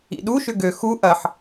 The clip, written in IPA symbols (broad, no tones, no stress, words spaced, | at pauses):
ḭɗuʃʏ ɡø xu ʔɐħ